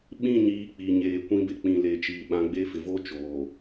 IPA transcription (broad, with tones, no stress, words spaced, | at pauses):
ɓĩ˦˨ɲiː˨˦ k͡pi˨ ɲeː˨ kʷĩ˦be˨ k͡pĩ˨leː˨t͡ʃiː˨ ɓã˨˦ɡ͡be˦fɪ˨ vo˦ t͡ʃoː˨